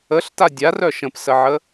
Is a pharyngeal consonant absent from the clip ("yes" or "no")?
no